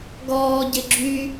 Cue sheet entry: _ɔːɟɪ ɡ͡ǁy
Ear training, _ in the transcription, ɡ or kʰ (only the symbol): ɡ